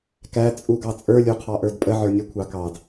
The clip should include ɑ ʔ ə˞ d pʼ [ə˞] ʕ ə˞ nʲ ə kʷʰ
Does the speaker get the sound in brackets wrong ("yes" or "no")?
yes